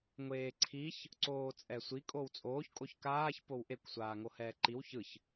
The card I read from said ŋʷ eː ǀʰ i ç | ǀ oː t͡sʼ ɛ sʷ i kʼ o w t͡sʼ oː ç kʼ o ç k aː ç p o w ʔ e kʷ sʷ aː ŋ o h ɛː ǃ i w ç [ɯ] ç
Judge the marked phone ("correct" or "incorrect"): correct